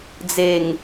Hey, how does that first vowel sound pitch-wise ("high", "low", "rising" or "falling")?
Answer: low